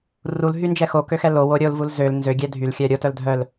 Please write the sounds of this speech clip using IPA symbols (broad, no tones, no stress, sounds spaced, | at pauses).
r u l ɦ y n d͡ʒ ɛ x o k ø x ɛ l o w o ɾʲ o l v u l z ø l n z ø ɡʲ ɛ dʱ y l xʲ œ ɾʲ o t œ l dʱ œ l